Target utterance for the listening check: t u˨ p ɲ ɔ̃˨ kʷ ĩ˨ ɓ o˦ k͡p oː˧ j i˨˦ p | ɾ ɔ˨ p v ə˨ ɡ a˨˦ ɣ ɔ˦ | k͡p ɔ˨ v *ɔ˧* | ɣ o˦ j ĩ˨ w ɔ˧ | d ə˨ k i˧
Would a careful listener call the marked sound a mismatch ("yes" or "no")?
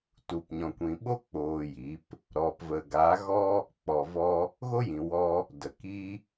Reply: no